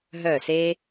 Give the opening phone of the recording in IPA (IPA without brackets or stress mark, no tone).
ɦ